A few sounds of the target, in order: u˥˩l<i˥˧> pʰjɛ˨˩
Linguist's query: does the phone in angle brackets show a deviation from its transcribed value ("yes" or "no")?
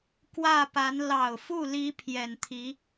yes